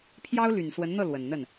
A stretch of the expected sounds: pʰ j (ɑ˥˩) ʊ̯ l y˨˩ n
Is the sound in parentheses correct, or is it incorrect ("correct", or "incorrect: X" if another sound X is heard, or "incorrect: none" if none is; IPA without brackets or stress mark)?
incorrect: ɑ˥